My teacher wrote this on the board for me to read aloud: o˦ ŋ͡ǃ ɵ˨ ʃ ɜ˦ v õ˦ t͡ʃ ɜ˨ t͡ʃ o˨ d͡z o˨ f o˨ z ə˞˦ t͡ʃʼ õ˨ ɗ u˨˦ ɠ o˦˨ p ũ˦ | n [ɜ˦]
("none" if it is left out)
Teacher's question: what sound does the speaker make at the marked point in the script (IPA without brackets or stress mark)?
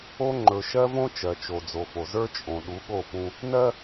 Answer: ɜ˦